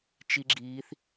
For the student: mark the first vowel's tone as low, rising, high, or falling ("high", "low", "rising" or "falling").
high